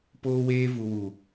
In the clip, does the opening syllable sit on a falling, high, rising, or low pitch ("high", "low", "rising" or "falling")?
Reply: high